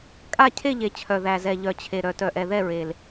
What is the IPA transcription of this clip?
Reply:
kʼa˥˨ cʰe˥˨ʎe˨˩ t͡ɕʰœ˨˩ ðæ˨˩zɛ˨˩ ʎœ˨˩t͡ɕʰe˨˩ ɾœ˨˩tœ˨˩ʔɛ˨˩ ðɛ˥˨ɹe˨˩l

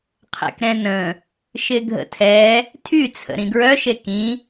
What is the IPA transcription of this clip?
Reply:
qʰḛkɾɛ̃nə̃ | ʃɪɡʱə̰tʰɛ | tʰy t͡sʰə̰ɾĩɡɹœ ʃekĩ

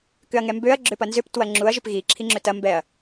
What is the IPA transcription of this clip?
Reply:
kʏɐ̯ŋɛmbøɐ̯ ɡ͡ǁʏpɐnzʏp twɐŋ͡ǁuɐ̯ ʒʏpɣi ǁʰiŋ͡ǁøtɐ mbɛɐ̯

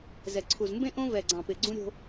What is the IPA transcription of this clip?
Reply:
zɛ˨ ǀʰu˨z mbẽ˦ ʔõ˦ vɛ˨ɡ͡ǀɑ̃˨ pɪ˨ ɡ͡ǀũ˦ɾʲo̤˦

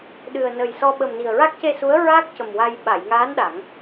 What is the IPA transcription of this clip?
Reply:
ɗɨ˨˩ə̯ nə˨˩jsɔ˧ ɓə˨˩m ni˨˩ə̯ɹa˦˥k̚ce˧su˧˥ə̯ ɹa˦˥k̚ cə˨˩mwa˧j ɓa˨˩˨jŋaː˧˥n ɗa˨˩˦ŋ

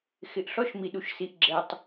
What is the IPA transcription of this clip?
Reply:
xɪ˨ʔɬɔ˦ʃ mi˨ɗu˨ʃsi˨ʔɡ͡ǁɛ˨tˤ

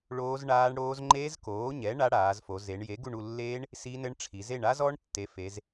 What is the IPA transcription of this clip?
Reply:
ɭoː˦˥zɳaː˦˥ɳɽoː˦˥z ŋ͡ǃeː˦˥zkoː˩˥ɲɛ˩˥ ɳa˦˥ɽaː˩˧z fo˩˧ze˩˧ɳ je˩˥ɡu˦˨ɳu˦˨lːeː˦˥ɳ | si˦˥nɘ˦˥ɳʈ͡ʂʰi˩˧ ze˦˨ɳa˦˥zɔ˦˥ɳ tːe˩˥fe˩˧z

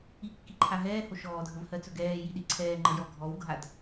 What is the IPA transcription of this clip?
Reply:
ikːiǃʰa ɦɛːho ʃɔːdʱəvhɜt͡sɵ ɡɛːjiɗi ǀʰɛːŋ͡ǃəjɔ ɡʱɔwɡʱad

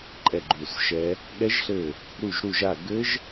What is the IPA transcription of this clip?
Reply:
ǃʼɛ˦˨ɡ͡ǃu˦˨sʃɛ˦˥ | ɠɛ˦˥ʒɬɘ˦˨ | ɾu˦˨ʒɾu˦˨ʒa˦˨ ɡɘ˦˥ʒ

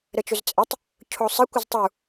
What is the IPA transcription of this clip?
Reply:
ɾət͡ʃɵzt͡sʼɘtˤ | cʰosˤɘ kʷɘztˤu

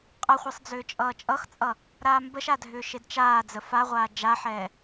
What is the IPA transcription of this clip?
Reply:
qʼʌχʷʌsˤ d͡zʏːt͡ʃʼʌːt͡ʃʼʌxt͡sʼʌ | ɾaːmbəʃa dʱʏːʃedt͡ʃaːd͡zə faʁʷaː d͡ʒaħɛː

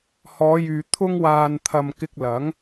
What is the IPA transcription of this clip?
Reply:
hɔː˨˧jyː˨ t̪ʰʊ˧ŋwaː˨nt̪ʰɐ˨m kɪ˧k̚lɐ˨˥ŋ

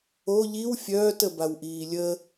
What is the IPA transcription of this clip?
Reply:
o ʎiw fʲœːtə bawʔiːlʲə

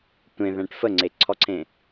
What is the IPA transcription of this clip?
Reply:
tʷẽðæ̃ʈ fəŋ͡ǀeǀʰɔǀʰẽ

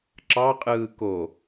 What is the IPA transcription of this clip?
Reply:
ǁɑqʼɯː ko

